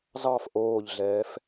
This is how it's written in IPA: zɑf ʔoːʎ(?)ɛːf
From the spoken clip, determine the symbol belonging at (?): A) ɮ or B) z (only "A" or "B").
A